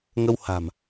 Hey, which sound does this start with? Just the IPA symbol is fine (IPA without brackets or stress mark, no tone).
ŋ